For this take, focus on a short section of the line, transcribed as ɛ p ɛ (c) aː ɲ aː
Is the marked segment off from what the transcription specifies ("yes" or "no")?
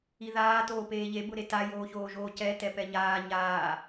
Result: yes